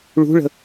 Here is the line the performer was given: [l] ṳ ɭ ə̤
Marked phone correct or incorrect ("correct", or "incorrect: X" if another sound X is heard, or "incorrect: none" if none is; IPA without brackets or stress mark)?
incorrect: ɭ